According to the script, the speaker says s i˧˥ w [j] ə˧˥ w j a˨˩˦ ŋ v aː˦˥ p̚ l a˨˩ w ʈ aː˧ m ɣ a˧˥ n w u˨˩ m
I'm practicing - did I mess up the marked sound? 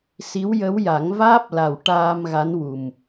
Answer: no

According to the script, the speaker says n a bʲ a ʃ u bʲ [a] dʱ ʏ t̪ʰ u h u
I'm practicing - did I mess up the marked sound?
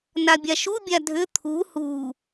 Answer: no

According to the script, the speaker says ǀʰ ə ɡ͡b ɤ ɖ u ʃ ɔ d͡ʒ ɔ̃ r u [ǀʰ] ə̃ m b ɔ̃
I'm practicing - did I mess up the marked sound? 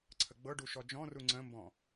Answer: yes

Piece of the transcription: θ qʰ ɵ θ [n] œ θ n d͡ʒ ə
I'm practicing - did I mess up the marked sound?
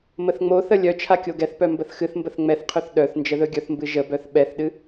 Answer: yes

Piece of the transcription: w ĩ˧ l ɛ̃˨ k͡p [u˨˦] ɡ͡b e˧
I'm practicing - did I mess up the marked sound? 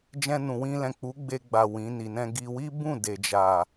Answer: no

